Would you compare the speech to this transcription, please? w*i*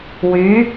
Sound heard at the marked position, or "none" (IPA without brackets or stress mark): y